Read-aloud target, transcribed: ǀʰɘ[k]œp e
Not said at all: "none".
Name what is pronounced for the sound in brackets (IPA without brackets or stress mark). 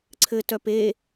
t